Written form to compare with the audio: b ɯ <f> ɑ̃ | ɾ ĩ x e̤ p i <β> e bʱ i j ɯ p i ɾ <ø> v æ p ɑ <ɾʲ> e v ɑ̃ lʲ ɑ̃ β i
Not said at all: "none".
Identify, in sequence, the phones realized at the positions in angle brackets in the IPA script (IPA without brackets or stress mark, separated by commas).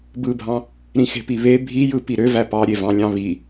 bʱ, β, ø, ɾʲ